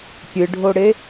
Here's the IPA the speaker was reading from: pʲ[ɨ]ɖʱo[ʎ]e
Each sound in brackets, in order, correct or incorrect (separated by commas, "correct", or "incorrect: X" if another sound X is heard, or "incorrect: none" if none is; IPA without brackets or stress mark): correct, incorrect: ɽ